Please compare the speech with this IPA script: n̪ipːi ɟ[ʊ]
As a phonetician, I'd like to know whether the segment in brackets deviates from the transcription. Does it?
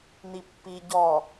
yes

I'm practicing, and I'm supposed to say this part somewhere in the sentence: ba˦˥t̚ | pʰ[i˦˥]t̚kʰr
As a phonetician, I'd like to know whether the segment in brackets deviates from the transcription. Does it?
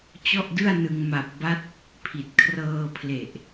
yes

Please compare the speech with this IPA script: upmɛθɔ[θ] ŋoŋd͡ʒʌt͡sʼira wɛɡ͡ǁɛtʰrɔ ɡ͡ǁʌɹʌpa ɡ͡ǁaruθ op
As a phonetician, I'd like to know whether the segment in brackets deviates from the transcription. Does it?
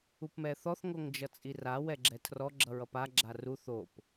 no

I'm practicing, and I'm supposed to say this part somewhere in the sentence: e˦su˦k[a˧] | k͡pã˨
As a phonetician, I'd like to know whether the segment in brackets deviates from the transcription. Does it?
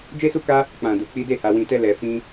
yes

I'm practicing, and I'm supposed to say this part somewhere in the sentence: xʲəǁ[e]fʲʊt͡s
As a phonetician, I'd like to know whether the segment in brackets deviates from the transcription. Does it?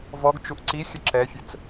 yes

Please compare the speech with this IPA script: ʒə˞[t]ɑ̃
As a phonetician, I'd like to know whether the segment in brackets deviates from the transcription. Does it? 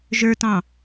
no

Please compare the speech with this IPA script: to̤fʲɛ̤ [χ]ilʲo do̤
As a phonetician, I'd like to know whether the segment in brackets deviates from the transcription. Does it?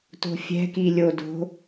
yes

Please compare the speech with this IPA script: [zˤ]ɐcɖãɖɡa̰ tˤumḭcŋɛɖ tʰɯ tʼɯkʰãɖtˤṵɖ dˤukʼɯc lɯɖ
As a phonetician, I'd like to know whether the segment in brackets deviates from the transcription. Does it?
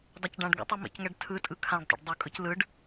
yes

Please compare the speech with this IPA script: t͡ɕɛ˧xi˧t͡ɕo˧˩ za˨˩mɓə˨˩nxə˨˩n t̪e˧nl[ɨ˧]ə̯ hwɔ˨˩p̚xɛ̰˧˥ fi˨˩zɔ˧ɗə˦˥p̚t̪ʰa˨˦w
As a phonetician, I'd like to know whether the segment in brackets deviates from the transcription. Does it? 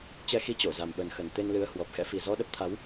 yes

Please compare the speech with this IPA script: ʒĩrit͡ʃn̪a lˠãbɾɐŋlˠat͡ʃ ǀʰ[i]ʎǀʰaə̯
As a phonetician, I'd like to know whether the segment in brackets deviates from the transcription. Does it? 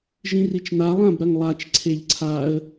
yes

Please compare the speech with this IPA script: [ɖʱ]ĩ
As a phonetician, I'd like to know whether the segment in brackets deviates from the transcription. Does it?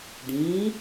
yes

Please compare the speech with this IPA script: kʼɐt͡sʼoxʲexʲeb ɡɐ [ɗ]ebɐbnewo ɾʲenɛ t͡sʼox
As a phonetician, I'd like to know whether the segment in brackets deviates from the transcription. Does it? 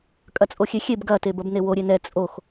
yes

